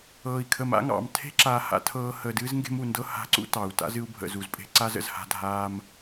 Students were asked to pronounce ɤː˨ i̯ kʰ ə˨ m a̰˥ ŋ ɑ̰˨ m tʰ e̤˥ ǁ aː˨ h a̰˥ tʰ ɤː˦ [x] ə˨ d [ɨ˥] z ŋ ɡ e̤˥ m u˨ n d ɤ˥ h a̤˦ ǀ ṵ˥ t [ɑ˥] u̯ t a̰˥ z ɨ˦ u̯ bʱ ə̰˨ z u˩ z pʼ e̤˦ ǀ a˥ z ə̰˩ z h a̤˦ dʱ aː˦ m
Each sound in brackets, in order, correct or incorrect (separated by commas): incorrect, correct, incorrect